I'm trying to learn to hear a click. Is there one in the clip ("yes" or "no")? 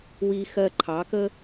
yes